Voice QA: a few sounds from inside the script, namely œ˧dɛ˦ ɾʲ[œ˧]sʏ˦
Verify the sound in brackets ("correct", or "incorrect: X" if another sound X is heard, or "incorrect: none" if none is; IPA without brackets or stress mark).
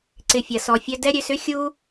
incorrect: ø˧